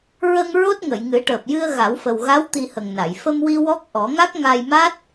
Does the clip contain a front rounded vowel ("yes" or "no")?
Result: no